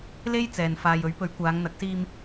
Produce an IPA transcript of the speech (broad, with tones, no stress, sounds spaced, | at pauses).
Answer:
l e˥ j t͡s ɛː˨ n f aː˨ j ɵ˨˥ ɥ p ɵ˨˥ ɥ kʷ aː˨˧ ŋ n̪ ɐ˨˥ k̚ s iː˧ m